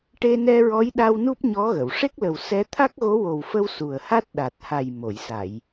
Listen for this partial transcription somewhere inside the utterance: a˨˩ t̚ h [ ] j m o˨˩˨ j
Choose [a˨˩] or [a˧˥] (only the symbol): a˨˩